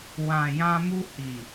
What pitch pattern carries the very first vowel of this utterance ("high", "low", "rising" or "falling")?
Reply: low